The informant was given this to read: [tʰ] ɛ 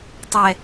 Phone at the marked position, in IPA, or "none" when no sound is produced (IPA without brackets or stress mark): tˤ